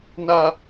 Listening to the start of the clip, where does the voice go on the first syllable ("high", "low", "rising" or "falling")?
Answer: low